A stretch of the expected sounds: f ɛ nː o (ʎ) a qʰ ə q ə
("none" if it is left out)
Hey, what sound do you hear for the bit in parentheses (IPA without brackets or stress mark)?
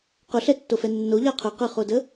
ʎ